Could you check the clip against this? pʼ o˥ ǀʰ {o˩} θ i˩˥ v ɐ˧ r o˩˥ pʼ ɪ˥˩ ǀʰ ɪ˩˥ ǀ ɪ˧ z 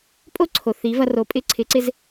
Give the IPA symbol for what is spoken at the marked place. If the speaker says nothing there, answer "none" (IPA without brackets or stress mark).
o˩